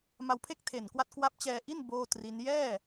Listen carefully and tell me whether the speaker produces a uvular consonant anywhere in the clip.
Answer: no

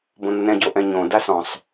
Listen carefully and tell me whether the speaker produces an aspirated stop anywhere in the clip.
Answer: no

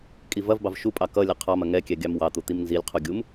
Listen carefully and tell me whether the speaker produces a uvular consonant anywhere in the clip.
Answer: yes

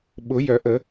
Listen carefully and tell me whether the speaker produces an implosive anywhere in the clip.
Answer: yes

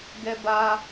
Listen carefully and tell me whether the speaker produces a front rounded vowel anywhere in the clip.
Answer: no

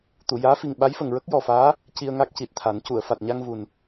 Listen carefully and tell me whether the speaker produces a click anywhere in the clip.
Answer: no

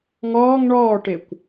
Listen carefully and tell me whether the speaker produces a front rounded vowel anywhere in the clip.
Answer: no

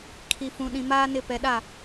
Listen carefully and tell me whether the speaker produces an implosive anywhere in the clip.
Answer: yes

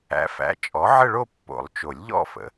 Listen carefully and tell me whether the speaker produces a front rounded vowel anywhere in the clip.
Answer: no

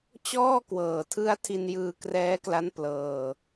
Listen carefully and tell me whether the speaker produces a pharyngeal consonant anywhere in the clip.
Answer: no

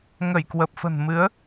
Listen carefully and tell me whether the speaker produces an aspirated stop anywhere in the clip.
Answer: no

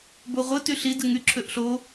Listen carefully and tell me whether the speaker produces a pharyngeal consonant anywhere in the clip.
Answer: no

